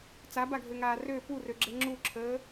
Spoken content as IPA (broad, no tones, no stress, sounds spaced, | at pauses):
t͡s a b a ɡʱ ø ŋ aː r ø p u r ø ɡ͡ǁ ɛ ŋ͡ǁ u ǁʰ əː